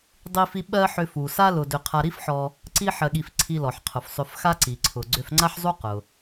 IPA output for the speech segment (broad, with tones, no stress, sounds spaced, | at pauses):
dˤ i˥ f i˥ ɓ ɜ˥ ħ ʏ˧ f u˩ s a˥ l ʊ˧ d ʏ˧ qʰ a˧ ɾ i˥ f ħ ɔ˧ | ǀ i˥ ħ ɜ˧ ɠ i˧ f ǀʰ i˧ l ɔ˩ ħ qʰ ʊ˩ f sˤ ʏ˧ f x a˥ ǀ i˩ ǀʰ ʊ˩ ɡ͡ǀ ʏ˧ f ŋ͡ǀ a˥ ħ zˤ u˥ q ʊ˩